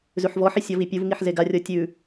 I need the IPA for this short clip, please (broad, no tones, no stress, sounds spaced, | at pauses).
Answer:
z ʉ ħ v ɔ ħ i sʲ ɔ v i pʲ u v ŋ i ħ z e ɡ a rʲ ɔ tʲ ʉ